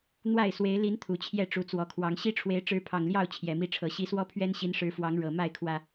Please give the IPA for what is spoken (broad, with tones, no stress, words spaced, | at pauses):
n̪wa˥˨ɪ̯swe˨˦ɪ̯ li˨˦n t̪ʰu˨˩t͡ɕʰjɛ˥˨ ʈ͡ʂu˨˦t͡swɔ˨˩kʰwɑ˨˦ŋ ɕi˦ʈ͡ʂʰwe˨˦ɪ̯ ʈ͡ʂɻ̩˨˦pʰɑ˨˩ŋljɑ˥˨ʊ̯ t͡ɕʰjɛ˨˩mi˥˨ʈ͡ʂʰɤ˨˦ ɕi˨˦swɔ˦ pʰɥɛ˦nɕi˨˦nʂɻ̩˨˦fwɑ˨˦ŋ ɻɤ˨˩ ma˥˨ɪ̯kʰwä˨˩